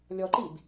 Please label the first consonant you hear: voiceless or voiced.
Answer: voiced